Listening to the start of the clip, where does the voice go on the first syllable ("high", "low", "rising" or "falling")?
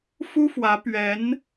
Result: high